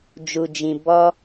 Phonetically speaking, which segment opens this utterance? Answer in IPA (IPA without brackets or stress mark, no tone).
d͡ʒ